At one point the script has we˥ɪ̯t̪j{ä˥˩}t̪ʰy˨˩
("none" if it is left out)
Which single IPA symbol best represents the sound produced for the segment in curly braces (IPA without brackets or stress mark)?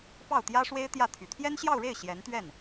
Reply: ä˥˩